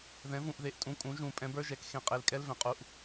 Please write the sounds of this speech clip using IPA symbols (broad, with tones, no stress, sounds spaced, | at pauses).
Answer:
ð ɛ̃˩˥ v ũ˩˧˩ ʔ ð e˩˥ ʔ tʼ ũ˩˧˩ kʼ ũ˩˥ ʒ ũ˨˩˦ pʼ ɛ̃˩˥ b ə˞˧˥˧ ʒ ɛ˩˧˩ k x ẽ˩˧˩ qʼ e˨˩˦ l kʼ ɛ˧˥˧ l v ɛ̃˩˥ qʼ u˩˧˩ ʔ